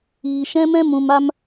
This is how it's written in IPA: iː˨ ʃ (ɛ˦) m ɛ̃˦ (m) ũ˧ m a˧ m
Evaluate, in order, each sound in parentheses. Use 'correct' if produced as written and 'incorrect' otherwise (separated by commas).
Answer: incorrect, correct